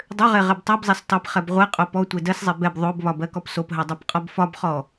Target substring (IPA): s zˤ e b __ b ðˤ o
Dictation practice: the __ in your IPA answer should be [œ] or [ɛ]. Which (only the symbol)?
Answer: ɛ